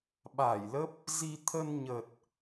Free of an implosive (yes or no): no